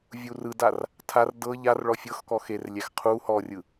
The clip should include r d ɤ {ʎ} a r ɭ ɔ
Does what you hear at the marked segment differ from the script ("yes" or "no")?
no